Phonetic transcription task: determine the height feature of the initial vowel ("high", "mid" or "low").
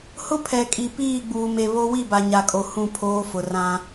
high